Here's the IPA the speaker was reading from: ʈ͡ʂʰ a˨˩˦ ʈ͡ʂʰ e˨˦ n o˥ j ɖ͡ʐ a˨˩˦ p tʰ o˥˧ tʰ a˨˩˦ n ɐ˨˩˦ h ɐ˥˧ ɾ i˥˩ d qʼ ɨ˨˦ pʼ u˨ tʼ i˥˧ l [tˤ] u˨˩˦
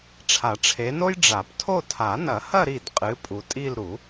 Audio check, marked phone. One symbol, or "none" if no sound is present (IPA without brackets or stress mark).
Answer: ɾ